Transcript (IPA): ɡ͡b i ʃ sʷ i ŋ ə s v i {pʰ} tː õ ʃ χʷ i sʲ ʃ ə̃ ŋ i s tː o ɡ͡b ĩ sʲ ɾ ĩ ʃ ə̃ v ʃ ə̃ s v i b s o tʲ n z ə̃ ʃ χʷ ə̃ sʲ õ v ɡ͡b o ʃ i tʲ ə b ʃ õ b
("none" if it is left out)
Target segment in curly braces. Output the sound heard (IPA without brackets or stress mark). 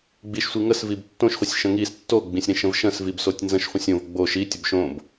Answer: b